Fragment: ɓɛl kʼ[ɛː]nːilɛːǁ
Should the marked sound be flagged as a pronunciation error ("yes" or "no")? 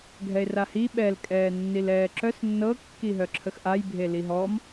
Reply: no